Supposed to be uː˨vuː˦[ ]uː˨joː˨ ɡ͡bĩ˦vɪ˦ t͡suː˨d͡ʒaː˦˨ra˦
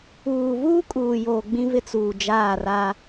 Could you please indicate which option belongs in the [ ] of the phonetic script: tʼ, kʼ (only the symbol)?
kʼ